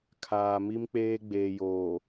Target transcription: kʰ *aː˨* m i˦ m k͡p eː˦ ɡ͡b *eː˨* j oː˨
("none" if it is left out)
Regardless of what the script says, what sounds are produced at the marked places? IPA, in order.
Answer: aː˨, eː˨

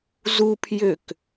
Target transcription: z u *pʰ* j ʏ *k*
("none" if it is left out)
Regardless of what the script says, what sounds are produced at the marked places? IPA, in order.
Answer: pʰ, k

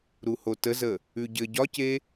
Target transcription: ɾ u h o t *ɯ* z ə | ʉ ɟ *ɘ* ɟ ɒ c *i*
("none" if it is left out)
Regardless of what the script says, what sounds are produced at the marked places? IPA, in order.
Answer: ə, ɘ, e

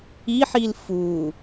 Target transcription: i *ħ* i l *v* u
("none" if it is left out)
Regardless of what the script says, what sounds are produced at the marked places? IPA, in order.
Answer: ħ, f

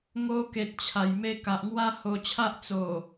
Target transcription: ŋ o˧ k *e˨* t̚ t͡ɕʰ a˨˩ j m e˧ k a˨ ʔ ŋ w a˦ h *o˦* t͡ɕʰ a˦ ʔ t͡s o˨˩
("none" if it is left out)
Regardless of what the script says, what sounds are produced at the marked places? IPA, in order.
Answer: e˨, o˧

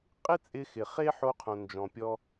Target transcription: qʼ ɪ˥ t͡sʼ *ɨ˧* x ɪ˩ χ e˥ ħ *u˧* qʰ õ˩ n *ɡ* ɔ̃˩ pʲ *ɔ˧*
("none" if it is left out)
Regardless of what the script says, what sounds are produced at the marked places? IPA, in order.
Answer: ɪ˧, o˧, d͡ʒ, ɔ˧

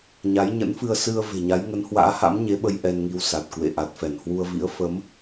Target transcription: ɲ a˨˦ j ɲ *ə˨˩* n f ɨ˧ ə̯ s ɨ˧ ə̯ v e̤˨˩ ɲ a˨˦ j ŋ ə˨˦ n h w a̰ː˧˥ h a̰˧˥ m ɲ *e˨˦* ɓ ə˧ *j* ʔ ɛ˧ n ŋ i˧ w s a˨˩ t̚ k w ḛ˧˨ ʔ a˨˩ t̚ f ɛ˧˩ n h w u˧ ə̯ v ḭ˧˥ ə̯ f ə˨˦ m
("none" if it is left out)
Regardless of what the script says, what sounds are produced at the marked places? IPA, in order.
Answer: ə̰˧˥, e˨˦, j

